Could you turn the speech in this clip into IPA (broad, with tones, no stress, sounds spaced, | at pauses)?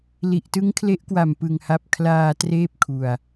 l i˨˩ ʔ t ɯ˦˥ ŋ kʰ l e˦˥ ʔ k w a˨˩ m p ɯ˧ ŋ h a˦˥ p̚ kʰ l aː˧ t r eː˥˩ p̚ kʰ u˧ a̯